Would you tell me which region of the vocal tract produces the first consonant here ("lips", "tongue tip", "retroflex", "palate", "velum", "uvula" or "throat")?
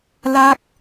tongue tip